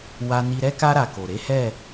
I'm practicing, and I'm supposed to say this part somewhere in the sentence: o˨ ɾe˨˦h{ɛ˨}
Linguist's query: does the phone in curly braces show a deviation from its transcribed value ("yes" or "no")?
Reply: yes